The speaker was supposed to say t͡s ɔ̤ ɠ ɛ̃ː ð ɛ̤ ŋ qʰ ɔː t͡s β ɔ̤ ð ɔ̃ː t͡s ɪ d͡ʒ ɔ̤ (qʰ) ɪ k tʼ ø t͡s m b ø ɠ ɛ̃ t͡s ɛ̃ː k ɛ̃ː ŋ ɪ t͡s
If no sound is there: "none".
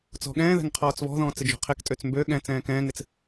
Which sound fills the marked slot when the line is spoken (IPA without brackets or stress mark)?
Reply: qʰ